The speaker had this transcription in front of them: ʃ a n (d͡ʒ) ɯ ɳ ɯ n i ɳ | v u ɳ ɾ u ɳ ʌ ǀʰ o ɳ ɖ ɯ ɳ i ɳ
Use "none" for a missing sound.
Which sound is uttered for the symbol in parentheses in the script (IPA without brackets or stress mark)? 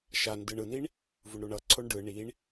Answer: d